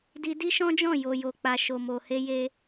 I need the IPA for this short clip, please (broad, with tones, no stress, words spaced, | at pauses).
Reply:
di˧di˦ʃɔ̃˦d͡ʒɔ̃˦˨ jo˨jo˨k͡pa˨ ʃo˨mo˨he˧je˧